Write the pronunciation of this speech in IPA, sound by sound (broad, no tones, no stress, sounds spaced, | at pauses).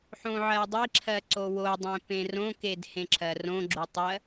ħ õ ʕ ɜ dˤ i ǁʰ ɜ ǀ o w o dˤ ẽ p ẽ r õ k e d h ẽ ǁʰ ɜ r õ ɡ͡ǁ o tˤ ɜ